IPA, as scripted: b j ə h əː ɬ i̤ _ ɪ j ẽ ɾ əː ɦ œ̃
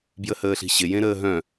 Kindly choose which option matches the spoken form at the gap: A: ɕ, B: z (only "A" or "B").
A